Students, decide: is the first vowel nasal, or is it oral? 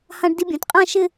nasal